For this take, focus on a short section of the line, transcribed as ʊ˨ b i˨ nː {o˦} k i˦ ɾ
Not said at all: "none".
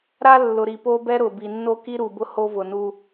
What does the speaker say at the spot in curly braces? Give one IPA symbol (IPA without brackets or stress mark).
o˦